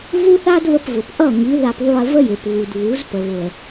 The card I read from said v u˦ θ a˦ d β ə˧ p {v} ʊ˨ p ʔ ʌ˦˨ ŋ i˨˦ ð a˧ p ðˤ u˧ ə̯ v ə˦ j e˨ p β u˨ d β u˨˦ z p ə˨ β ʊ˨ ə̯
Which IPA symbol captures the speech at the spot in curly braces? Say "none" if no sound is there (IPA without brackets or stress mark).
v